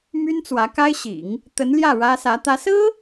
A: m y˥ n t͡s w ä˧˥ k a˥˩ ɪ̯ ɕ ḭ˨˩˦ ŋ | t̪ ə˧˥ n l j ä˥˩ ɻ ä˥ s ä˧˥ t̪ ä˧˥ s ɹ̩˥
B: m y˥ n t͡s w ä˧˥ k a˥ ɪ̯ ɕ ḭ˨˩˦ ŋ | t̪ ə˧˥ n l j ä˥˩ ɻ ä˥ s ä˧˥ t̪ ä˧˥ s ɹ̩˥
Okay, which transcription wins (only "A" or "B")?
B